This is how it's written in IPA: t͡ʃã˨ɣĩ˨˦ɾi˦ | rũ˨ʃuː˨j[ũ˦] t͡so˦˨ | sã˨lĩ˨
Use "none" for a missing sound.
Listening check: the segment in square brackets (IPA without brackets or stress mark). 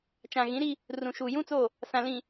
ũ˦